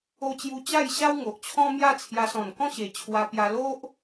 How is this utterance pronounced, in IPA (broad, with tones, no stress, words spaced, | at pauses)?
o˧t͡ɕju˧ t͡ɕa˥˧jɕa˦w ŋo˨ʔt͡ɕʰɔ̃˦ mja˥˧t͡sʰja˧sɔ̃˨˩n kɔ̃˥˧ɕe˨˩t͡ɕʰwa˧pja˧ lo˦ʔ